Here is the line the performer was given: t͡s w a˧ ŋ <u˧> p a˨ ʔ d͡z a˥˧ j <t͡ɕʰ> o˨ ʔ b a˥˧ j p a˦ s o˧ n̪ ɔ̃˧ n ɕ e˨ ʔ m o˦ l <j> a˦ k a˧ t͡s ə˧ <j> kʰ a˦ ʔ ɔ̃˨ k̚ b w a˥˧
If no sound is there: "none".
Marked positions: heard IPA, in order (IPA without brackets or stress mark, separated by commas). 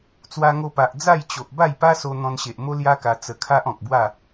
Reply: o˧, t͡ɕ, j, none